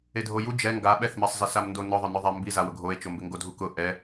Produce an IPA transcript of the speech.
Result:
e dʱ o j u d͡ʒ ɛ ŋ ɡ a ɓ ɛ θ m ɛ sˤ z ɪ s a m n d o n ʊ ðˤ ʊ n ʊ ðˤ a m b i z a w ʊ ɡʱ o e̯ t͡ʃ o m b ɪ ŋ ɡ o dʱ u k ʊ ʔ ɛ

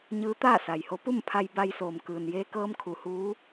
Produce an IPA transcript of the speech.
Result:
ɲ ɯː˧˥ t̪ aː˥˨ s a˩ j h o˧˥ p u˥˨ m pʰ a˧ j b a˧ j s oː˩ m k ɯː˩ n j eː˧ k ɤː˧ m kʰ u˩˧ h uː˧˥

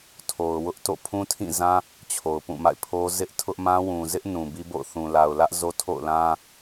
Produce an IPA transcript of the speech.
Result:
tʰ o˨ ʊ̯ w ʊ˦ ʔ t o̰˦˨ pʰ ũ˦ tʰ ĩ˦˨ z ã˦ | t͡ɕʰ o˨ ʊ̯ p ũ˦˨ m a̰˦˨ ɪ̯ pʰ o˦ z ɪ˦ ʔ tʰ ʊ˦ ʔ m ã˦ w ũ˨ z ɪ˦ ʔ n ũ˨ b i˦ b o̰˦˨ ʊ̯ θ ũ˨ l a˨ ʊ̯ l ä˦ ʔ z o˦ tʰ o̰˦˨ ʊ̯ l ã˦

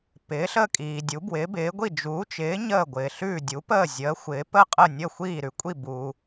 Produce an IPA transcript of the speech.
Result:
p ɪː˨˥ ɬ ə˥˨ kʼ iː˨ dʲ u˨˥ b w ɪː˨˥ b ɪː˨˥ ɡʷ i˥˨ d͡ʒ uː˨˥ t͡ʃ ɪː˨˥ ɲ əː˥˨ ɡʷ ɪː˨ ɬ ʉː˥˨ dʲ u˨˥ p əː˥˨ zʲ əː˨˥ xʷ ɪː˨˥ p ə˥˨ qʼ ə˥˨ nʲ ə˥˨ xʷ iː˥˨ ɾ ʉ˨ kʷʼ i˥˨ b u˨

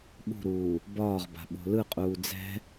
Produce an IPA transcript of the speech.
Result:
ɓ ṳ ɾ uː | b ɒː ʁ b a̤ ɓ o̤ l ɯ qʼ uː d͡z ɛ̤

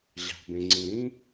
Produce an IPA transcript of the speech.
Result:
ʑ ɑ̤˩ b ẽ˩ ŋ͡ǀ ĩ˩ ɾ ĩ˥

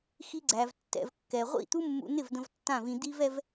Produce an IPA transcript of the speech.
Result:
x i˧ ɡ͡ǀ æ˨ v tː ɛ̰˨ v kː ɛ˨ ʁʷ ḭ˦˨ t̪ u˦ mː ṵ˧ n̪ ɪ˦˨ v d̪ ə̃˧ v tː ã˦˨ v ĩ˧ d̪ i˦ v ɛ˦ v

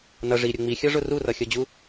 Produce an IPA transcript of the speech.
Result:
n ʌ ʐ i ɾʲ ʊ ŋ͡m i xʲ ʌ ʐ ʊ r u r ʌ xʲ ʌ d͡ʑ u

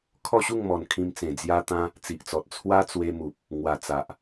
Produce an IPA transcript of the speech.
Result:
kʰ ɔ˥˧ ɕ u˥˧ ŋ m ɔ˨˩ n kʰ ĩ˧ m t͡s ẽ˨˩ d͡z j a˦ t̪ ã˦ | t͡s i˨ ʔ t͡s ɔ˨ t̚ t͡sʰ w a˦ t͡s w e˧ m u˨ p̚ | ŋ w a˨˩ t͡s a˨ ʔ

